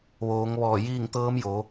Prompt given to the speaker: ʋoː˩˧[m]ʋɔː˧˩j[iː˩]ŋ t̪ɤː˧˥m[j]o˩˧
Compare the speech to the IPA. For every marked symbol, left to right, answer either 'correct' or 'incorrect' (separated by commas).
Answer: incorrect, incorrect, correct